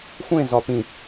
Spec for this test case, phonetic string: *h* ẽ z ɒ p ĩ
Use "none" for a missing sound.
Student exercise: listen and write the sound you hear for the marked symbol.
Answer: xʷ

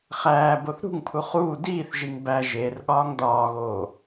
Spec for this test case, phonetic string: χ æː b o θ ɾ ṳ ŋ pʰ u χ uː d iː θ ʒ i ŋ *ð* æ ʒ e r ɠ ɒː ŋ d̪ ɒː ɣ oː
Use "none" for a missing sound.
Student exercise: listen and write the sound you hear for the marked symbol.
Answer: b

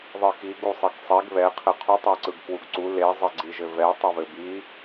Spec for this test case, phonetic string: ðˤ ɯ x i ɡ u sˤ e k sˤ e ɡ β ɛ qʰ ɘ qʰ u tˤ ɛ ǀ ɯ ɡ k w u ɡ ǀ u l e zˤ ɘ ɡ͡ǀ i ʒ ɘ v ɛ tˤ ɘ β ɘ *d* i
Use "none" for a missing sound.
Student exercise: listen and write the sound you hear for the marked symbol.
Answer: b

